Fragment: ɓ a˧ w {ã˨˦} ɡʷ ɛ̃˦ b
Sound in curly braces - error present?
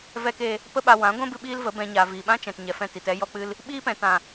no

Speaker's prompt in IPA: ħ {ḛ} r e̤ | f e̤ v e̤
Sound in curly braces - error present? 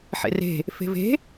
no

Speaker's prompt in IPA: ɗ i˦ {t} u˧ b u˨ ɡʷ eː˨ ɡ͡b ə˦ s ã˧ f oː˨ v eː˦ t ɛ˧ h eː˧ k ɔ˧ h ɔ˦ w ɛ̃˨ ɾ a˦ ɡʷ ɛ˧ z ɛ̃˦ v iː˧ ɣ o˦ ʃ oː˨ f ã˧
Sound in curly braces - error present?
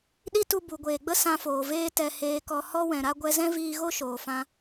no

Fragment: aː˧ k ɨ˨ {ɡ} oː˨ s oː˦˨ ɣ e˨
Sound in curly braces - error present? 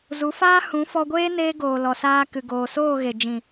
no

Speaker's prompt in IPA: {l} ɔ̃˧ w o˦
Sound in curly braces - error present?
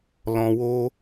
no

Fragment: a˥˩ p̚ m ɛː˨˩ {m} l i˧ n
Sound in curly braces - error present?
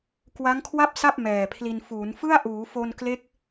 yes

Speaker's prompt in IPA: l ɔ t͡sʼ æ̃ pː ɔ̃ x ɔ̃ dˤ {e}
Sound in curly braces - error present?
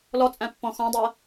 yes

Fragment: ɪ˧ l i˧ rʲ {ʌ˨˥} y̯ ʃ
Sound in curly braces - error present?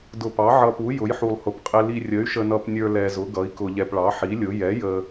yes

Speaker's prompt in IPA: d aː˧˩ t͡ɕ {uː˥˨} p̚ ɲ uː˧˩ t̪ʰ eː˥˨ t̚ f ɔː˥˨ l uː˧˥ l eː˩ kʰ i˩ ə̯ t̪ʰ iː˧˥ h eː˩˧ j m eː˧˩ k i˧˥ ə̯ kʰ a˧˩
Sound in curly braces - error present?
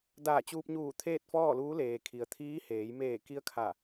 yes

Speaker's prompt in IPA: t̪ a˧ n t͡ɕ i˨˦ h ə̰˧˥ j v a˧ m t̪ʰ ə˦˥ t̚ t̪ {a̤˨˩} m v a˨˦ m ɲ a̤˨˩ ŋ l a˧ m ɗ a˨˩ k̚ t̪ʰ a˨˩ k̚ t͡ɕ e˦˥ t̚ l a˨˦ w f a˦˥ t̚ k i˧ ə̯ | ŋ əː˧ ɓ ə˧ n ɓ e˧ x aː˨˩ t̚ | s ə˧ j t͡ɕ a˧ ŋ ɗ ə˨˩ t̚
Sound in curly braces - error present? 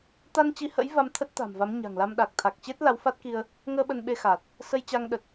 no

